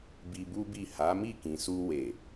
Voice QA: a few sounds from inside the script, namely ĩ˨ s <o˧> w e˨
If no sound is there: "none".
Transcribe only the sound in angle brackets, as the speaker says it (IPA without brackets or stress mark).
u˧